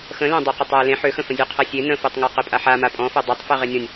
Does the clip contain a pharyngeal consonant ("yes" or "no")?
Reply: yes